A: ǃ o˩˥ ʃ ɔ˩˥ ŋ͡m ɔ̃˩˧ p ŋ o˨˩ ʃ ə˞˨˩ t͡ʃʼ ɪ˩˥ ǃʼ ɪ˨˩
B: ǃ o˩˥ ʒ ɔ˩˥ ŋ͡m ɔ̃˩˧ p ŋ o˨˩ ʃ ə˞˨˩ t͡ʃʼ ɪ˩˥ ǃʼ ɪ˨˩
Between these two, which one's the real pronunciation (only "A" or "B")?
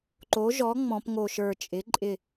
B